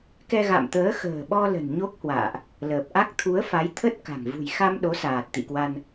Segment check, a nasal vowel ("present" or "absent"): absent